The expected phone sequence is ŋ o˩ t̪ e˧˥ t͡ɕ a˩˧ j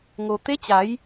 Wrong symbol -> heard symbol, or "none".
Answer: none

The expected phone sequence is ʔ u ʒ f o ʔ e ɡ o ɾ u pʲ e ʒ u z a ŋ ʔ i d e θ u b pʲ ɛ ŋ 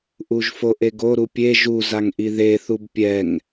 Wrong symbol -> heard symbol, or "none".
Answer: d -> ð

